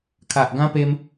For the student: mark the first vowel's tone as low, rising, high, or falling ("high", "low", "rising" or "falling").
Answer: low